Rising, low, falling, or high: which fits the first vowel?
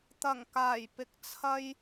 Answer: low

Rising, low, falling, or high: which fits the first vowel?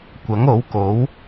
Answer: rising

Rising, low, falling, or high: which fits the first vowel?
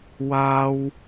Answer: high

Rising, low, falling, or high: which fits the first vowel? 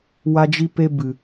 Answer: high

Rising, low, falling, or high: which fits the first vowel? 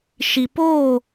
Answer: low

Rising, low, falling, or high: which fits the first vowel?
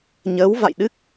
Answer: rising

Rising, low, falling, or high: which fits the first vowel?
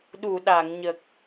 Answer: low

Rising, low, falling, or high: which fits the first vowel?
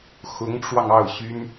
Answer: rising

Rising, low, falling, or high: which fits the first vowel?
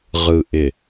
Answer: low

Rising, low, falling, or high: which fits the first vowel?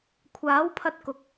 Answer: rising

